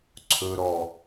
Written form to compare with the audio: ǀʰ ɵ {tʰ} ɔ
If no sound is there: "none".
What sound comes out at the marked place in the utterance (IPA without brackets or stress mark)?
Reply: ɾ